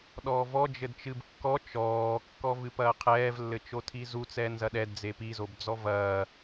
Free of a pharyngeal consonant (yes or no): yes